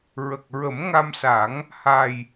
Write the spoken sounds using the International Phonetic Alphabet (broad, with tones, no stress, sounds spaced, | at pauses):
ɹ ə˨˩ k̚ ɹ ə˨˩˦ m ŋ a˧ m s a˨˩˦ ŋ | h a˨˩ j